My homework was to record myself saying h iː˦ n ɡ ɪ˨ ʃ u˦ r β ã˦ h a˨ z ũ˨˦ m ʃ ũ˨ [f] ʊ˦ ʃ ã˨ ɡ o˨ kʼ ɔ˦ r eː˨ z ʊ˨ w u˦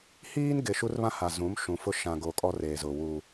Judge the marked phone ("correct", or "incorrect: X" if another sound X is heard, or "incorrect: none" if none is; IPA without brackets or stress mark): correct